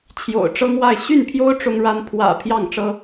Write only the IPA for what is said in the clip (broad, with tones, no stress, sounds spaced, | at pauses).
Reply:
t͡ɕʰ j o̰˨˩ ʊ̯ ʈ͡ʂ ɤ˥ ŋ w a˥˧ ɪ̯ ɕ y˥˩ n pʰ j o˥ ʊ̯ ʈ͡ʂ ʊ˥ ŋ ɻ a˥ n pʰ w ä̰˨˩ pʰ j ɑ˥˩ ŋ ʈ͡ʂ ɤ˥